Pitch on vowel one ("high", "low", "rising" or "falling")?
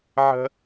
high